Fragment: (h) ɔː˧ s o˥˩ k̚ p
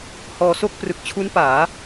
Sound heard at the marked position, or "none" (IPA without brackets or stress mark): h